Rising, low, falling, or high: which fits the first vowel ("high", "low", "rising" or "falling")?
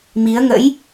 rising